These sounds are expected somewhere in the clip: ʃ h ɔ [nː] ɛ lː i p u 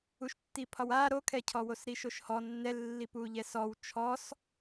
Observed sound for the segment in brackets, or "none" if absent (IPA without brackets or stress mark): nː